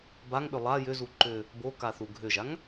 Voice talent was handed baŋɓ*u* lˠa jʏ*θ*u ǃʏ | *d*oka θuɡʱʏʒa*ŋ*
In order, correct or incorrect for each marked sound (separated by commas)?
incorrect, incorrect, incorrect, correct